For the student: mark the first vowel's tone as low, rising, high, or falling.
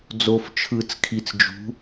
low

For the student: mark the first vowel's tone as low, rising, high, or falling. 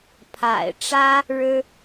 low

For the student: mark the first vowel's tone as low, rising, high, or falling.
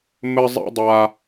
high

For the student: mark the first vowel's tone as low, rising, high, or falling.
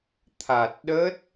low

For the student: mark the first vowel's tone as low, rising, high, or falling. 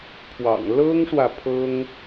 low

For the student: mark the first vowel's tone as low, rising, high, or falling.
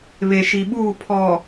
low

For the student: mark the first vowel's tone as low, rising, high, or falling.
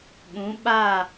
rising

